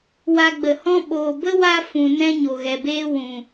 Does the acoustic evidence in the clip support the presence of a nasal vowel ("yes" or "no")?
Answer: yes